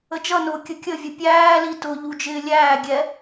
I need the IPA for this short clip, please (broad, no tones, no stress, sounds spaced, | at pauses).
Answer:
ə d͡ʒ ʌ n ʊː kʲ ə kʲ ə vʲ ʊ pʲ æː l i t ʊ ʎ u d͡ʒ ɪː lʲ æː ɡʲ ɛ